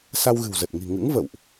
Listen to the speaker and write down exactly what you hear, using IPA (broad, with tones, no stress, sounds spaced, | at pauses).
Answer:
s a˧ w ɣ ɨ̤˨˩ w z ə˨˩ t̚ ŋ i̤˨˩ ŋ ɨ̰˧˥ ŋ v ə̰˧˨ w ʔ